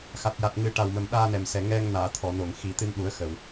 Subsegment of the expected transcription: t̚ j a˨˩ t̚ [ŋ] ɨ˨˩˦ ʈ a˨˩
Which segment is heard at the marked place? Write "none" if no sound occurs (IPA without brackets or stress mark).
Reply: ŋ